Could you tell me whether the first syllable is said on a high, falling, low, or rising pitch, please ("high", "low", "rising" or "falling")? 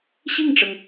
falling